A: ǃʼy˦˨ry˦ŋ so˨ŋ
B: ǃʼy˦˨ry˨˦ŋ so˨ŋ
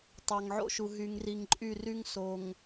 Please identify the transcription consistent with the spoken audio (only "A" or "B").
A